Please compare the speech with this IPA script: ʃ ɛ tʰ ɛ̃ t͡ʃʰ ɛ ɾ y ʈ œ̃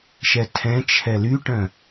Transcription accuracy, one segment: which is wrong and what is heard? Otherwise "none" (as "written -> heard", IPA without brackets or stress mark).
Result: ɾ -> l